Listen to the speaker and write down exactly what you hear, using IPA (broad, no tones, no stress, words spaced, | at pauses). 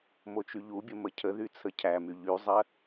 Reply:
mot͡ʃyʎubʲə məcʰəðy t͡sʰəcʰæmy ʎyzˤɜ